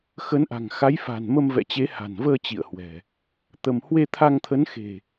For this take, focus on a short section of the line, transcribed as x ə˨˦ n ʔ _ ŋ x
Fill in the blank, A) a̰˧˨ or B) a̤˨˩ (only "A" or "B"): B